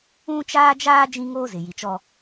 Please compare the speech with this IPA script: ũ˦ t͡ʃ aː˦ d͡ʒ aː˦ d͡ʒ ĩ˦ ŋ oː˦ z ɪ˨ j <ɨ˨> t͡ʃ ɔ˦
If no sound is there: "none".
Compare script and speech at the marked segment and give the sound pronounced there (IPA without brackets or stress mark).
i˨